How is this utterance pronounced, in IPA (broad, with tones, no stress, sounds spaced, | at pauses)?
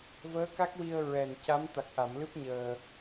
v əː˧˥ k a˦˥ k̚ w i˧ ə̯ ɹ ɛ˨˩ n c a˧˥ m t̪ a˨˩ k̚ ʔ a˨˩˨ m l ɨ˦˥ p̚ ɲ əː˧